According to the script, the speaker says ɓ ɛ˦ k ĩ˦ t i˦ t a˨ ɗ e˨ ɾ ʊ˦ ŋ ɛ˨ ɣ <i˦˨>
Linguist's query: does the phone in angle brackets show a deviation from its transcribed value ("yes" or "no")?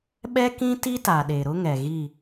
no